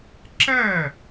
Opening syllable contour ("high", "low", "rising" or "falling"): falling